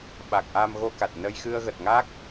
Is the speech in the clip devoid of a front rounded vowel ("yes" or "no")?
yes